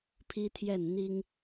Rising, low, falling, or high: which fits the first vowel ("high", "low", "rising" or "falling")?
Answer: high